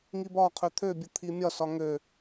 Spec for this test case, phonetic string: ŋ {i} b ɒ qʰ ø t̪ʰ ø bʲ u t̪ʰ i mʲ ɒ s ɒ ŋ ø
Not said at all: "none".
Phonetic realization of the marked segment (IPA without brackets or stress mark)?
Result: i